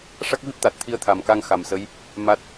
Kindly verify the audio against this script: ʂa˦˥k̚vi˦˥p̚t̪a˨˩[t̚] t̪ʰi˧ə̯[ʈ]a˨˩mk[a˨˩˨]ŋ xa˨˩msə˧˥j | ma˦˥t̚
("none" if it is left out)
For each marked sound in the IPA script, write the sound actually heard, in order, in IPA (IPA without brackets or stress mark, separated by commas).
t̚, t̪ʰ, a˧